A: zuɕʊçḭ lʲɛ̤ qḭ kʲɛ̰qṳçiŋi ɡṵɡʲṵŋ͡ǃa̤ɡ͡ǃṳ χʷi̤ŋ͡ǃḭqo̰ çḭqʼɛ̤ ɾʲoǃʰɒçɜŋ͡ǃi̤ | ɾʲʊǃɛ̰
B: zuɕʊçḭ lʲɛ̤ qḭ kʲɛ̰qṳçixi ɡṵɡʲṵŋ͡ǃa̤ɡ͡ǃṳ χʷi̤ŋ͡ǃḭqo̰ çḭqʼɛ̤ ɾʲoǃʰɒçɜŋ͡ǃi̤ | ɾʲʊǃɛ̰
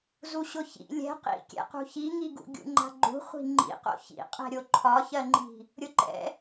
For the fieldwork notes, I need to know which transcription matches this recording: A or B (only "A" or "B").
A